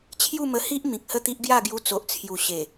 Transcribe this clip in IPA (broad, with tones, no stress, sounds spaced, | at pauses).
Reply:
t͡ɕʰ j u˥˧ m ə˧ h i˦ ʔ m ĩ˨ k̚ h ə˥˧ t̪ i˦ ʔ ɡ j a˥˧ ɡ j u˧ t͡s o˨ ʔ t͡sʰ j u˨˩ ɕ e˨˩